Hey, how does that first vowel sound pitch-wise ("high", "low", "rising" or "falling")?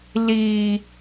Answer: low